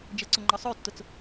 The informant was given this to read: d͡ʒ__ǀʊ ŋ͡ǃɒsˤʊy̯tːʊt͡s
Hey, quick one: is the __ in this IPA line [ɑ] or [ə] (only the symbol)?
ə